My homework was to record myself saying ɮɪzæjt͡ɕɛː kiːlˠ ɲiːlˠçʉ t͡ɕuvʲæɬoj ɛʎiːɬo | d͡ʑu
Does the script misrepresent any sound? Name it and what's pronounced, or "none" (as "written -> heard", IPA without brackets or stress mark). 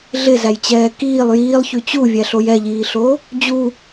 ɲ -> j